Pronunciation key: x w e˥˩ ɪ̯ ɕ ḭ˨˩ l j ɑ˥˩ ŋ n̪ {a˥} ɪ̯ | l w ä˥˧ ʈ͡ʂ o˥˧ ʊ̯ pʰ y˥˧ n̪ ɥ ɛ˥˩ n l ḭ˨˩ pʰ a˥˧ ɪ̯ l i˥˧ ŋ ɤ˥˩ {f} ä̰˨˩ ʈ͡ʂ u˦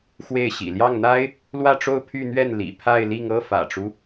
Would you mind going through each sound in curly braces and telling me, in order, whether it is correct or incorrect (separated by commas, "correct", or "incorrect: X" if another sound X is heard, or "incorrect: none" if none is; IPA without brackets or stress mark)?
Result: correct, correct